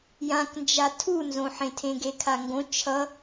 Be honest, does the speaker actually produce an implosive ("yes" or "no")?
no